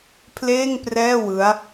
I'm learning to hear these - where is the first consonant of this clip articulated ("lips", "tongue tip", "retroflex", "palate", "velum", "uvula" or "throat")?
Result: lips